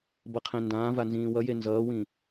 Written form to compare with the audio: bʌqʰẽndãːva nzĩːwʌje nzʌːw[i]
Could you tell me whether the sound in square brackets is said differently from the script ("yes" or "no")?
yes